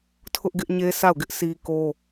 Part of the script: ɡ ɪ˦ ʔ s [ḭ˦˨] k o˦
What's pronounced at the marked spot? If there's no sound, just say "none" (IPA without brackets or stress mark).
i˦